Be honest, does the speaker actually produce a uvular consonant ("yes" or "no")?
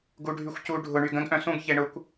no